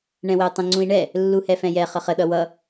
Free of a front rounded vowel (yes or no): yes